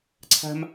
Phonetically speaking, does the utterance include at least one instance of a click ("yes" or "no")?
yes